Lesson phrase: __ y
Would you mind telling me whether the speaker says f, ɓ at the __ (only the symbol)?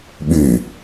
ɓ